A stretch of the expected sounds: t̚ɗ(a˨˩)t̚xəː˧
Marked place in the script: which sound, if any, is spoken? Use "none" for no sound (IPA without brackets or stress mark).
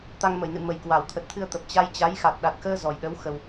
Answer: a˨˩